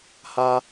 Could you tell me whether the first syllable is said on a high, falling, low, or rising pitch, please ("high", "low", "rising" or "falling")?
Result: high